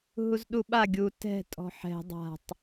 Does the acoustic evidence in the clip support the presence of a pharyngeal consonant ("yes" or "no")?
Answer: yes